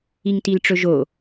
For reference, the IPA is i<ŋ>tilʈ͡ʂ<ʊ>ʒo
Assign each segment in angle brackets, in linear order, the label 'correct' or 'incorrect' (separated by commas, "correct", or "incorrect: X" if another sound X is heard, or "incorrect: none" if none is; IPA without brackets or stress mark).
correct, incorrect: ɵ